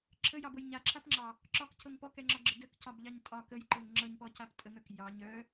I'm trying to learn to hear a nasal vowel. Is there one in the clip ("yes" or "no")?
no